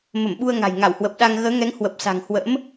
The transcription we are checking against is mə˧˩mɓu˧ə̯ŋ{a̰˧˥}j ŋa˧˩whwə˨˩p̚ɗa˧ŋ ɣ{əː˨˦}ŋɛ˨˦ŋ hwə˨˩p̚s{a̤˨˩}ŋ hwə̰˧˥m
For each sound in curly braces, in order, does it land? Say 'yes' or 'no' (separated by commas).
no, yes, yes